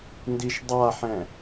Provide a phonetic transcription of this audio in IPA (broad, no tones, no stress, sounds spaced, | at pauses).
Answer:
n d i ʃ dˤ a ħ ɛ̃